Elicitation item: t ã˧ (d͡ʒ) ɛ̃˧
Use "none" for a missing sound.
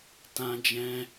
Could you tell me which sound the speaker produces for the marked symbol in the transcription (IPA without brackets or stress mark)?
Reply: d͡ʒ